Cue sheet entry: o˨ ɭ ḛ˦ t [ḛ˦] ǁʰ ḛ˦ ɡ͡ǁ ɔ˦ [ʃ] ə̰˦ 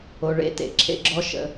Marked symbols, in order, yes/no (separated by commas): no, yes